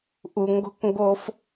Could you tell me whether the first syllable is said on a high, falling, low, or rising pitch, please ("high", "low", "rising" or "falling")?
low